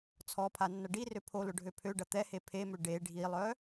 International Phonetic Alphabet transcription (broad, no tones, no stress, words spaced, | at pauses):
t͡sʰɔpʰa nːɐɖirø pʰolʊ ɖʱøpʰøɖɐ t̪ɛhe pʰemø ɖe ɖʱilˠœ